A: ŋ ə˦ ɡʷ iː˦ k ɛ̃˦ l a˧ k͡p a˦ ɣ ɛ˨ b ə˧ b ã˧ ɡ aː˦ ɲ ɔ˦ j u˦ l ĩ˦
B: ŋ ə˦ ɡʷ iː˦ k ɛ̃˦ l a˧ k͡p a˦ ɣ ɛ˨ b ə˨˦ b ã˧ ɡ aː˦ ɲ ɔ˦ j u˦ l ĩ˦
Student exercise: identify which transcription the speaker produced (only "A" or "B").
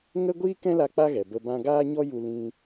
A